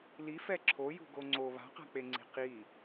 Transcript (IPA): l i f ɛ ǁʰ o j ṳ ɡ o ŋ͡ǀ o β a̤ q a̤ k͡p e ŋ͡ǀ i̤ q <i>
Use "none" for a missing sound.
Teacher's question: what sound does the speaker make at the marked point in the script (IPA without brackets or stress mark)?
i